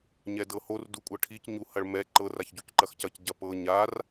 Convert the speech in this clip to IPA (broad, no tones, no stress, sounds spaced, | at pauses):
ɲ ɛ d ɤ h o r d u kʷʼ ɤ ʈʰ i c ɲ u h ɐ ɭ m ɛ ǃ ɤ r a ç ɟ u c ǃ ɐ x c ɐ c ɟ ɐ p ɤ ɲ a r